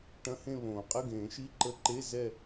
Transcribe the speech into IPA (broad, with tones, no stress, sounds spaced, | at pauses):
ʈ ɐ̃˧˥˧ h ẽ˥˧ β õː˨˩˦ qʼ ə˧˥˧ ɡ ẽː˨˩˦ ʃ i˧˥˧ ǃ ə˧˥˧ ǃ e˧˥˧ z ɛ˥˧